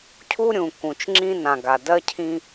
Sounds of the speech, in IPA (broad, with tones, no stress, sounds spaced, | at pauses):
cʰ u˦ ɾʲ ũ˨ k ũ˨ t͡ʃ ŋ͡ǁ ĩ˦ n ã˨ ɡ a˨ d ɜ˦ cʰ ĩ˦